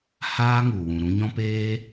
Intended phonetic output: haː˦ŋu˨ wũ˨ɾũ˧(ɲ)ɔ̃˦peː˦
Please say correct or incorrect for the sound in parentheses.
correct